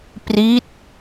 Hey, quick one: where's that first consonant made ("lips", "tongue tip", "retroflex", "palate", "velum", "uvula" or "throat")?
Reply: lips